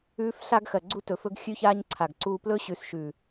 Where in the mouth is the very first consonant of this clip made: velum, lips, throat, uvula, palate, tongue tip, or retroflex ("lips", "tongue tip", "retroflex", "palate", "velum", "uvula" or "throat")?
lips